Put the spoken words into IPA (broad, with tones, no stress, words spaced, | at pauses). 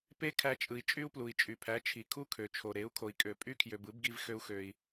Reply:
pe˦kʰæ˧t͡ʃʼɯ˨i̯ t͡ʃʼy˦u̯plu˨i̯t͡ʃʼy˨pʰæ˨˦ t͡ʃʰi˨kʰu˦kʰø˨t͡ʃʰo˨ ɾe˨˦u̯kʰo˨i̯kʼø˨ pʼy˦kʰjø˨b ɯ˨˦bɡi˧v xø˦u̯xø˧i̯